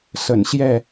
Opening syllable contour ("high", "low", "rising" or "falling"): low